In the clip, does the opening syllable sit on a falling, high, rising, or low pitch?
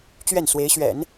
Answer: falling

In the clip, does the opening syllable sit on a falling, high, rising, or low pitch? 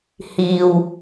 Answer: low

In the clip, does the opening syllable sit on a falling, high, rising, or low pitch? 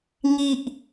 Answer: low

